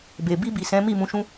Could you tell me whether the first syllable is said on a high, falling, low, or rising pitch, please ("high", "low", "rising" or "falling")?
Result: low